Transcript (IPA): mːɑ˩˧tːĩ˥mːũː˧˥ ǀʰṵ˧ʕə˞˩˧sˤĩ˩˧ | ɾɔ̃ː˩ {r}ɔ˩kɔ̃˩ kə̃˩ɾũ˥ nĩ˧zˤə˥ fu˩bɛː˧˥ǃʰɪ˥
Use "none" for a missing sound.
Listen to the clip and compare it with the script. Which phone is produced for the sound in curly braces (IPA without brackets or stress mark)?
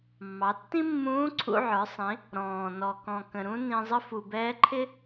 n